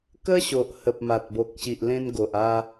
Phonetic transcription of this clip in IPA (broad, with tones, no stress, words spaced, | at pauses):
kə˦ɕo˨ʔhə˨p̚ ma˨t̚bo˨k̚ɕi˨ʔ lẽ˧nɡo˨ʔa˧